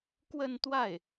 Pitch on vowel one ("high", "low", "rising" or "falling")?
falling